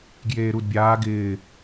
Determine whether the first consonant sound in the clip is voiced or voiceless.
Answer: voiced